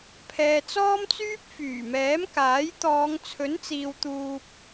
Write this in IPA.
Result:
pʰɛː˨t͡sɔː˥mt͡syː˥p̚ fyː˨˩mɛː˨˥mkaː˨˥jt̪ɔː˨˧ŋ t͡sʰɵ˨˥nt͡siː˨wt̪uː˨p̚

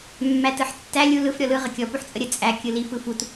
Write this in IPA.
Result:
mːætɯħtːæ lʲu lɯf ɾʲɔlɯ ʁəkʲɔ puħt͡sʼəɾʲə t͡sʼæ kʲɯlif ɯfut

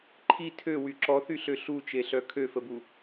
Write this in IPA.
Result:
ǃʰi tʰøwy ǁɔθyɬø ɬut͡ʃeɬœ kʰøfəbu

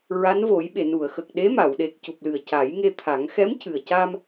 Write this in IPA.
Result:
ɹa˧˥nvo˨˩˦jɓe˨˩˨ nu˨˩˨ə̯xə˨˩k̚ ɗe˧˥ma˨˩˨wɗe˨˩k̚ cu˨˩p̚lɨ˨˩ə̯ ca˨˩˦jŋe˧ t̪ʰa˨˩˦ŋ xɛ˧˥m cɨ˨˩ə̯ca˧m

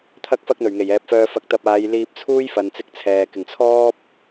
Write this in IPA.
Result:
t̪ʰɐ˥k̚fɐ˥k̚n̪ɵ˨˩ɥŋe˨˩j ɛː˨p̚fœː˧ fɐ˧k̚t̪ɐ˧p̚ aː˨˧jliː˧p̚t͡sʰuː˥j fɐ˨nt͡sɪ˧k̚t͡sʰɛː˨ kɪ˨˩ŋt͡sʰɔː˥p̚

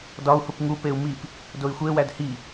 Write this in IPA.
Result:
dɒu̯hup ŋupeu̯ mip | doi̯xʷewæd hi

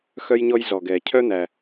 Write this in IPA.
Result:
xœ˥jɲɔ˥j zɔ˩ɡɛ˩cʰœ˥ n̪æ˩

